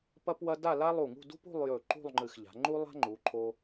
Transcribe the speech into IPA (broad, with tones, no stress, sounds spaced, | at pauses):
p ɐ˥ p w ɐ˥ d a˥˧ l a˥ lˠ u˧˩ ŋ ṳ˥˧ d ṳ˥ p ṳ˥˧ lˠ j ɵ˧˩ ǃ ṳ˥˧ lˠ ŋ͡ǃ ɨ˧˩ x ʎ a̤˩˧ ŋ͡ǃ u˥ lˠ a̤˥ ŋ͡ǃ u˩˧ ǃʰ o˧